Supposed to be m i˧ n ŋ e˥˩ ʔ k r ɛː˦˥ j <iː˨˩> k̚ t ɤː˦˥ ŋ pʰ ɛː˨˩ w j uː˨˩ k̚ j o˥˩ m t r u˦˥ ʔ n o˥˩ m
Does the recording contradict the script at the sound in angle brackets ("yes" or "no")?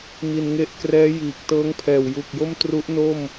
no